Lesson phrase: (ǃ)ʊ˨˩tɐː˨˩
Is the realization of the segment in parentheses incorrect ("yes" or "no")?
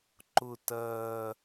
no